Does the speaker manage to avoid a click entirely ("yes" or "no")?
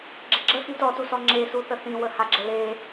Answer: no